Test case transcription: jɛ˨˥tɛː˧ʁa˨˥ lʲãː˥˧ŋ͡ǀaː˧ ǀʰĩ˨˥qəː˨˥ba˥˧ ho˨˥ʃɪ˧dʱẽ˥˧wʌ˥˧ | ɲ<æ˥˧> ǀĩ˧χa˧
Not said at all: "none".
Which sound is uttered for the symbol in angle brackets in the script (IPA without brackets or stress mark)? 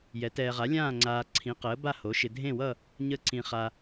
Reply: ə˥˧